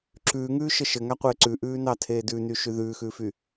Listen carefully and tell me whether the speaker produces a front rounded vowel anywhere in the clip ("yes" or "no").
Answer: yes